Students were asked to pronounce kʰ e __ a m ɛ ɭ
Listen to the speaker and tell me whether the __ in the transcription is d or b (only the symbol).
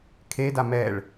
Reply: d